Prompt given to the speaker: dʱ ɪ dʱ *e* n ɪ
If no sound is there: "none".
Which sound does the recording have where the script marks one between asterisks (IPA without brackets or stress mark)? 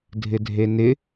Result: e